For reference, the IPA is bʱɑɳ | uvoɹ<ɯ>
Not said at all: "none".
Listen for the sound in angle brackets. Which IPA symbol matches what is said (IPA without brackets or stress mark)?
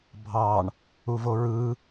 ɯ